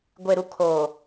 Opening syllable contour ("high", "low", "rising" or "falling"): low